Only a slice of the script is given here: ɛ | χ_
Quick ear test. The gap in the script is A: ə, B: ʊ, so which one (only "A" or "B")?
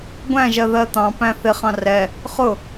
B